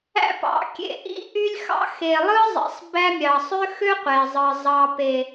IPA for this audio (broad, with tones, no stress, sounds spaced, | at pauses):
æ̰˦ p ɑ̰˨˦ kʲ ḛ˦˨ ʔ ḭ˦ ʔ y˦ lʲ x ɑ̰˦ x e˨ lˠ ɯ˦ zˤ ḭ˨ sˤ b æ˦ mʲ ɑ˨ sˤ ø˦ x ø˦ qʷ e˨ zˤ ɯ˨ zˤ ɑ˨ p e˨